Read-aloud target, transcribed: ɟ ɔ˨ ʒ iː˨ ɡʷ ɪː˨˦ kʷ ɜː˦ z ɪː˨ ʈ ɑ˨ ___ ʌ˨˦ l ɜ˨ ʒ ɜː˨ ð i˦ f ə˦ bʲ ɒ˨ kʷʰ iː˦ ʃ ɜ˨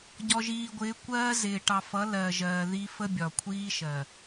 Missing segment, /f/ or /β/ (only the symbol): f